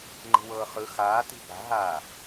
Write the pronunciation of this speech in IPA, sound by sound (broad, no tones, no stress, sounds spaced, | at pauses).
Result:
ŋ͡ǃ i̤ w ɤː χ ɯ x aː t i̤ b a̤ ɦ aː